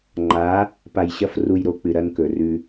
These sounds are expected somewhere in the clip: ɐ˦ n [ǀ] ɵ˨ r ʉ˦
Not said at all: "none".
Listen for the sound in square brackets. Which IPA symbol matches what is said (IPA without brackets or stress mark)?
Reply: k